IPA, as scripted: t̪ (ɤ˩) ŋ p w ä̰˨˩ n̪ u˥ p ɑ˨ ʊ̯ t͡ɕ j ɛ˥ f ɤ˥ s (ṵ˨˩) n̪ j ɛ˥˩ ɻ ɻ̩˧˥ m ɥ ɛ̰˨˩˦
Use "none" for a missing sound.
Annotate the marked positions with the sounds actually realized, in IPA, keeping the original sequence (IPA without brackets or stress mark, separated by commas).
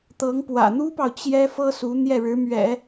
ɤ˧˥, u˧˥